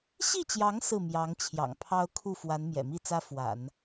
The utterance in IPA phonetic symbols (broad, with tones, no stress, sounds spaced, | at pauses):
ɕ i˥˩ t͡ɕ j ɑ˧˥ ŋ s ɹ̩˥˩ m j ɑ˧˥ ŋ t͡ɕʰ j ɑ̰˨˩ ŋ pʰ ɑ˥ ʊ̯ kʰ u˥˩ f w a˧˥ n m j ɛ̰˨˩ m i˥˩ t͡s ä˥ f w a̰˨˩˦ n